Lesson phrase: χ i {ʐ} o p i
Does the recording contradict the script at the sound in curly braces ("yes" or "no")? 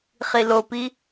yes